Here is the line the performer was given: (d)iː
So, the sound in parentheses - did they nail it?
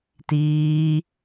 no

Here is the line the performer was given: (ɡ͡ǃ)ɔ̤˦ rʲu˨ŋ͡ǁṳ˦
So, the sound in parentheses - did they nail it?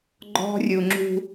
yes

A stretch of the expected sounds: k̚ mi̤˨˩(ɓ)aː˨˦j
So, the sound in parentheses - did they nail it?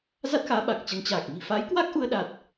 no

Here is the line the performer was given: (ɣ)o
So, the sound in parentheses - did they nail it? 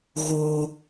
yes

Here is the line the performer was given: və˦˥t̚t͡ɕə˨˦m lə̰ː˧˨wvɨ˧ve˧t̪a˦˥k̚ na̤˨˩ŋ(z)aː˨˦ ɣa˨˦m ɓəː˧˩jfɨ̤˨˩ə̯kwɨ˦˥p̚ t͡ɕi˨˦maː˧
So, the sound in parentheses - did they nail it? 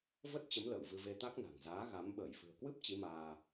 yes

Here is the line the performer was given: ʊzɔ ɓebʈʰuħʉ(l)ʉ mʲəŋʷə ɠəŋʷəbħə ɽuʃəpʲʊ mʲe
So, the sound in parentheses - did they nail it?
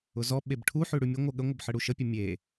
no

